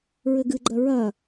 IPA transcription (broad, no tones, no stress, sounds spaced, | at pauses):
ɹ ɘ ɡ ɨ ɡ͡ǃ ɐ ɹ ɐ